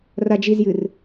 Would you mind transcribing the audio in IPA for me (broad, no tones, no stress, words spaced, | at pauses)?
rad͡ʒizjɨr